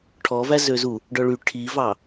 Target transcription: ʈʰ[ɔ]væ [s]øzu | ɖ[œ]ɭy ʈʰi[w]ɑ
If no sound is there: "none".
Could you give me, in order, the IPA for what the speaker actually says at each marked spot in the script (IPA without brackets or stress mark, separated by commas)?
ɔ, z, œ, v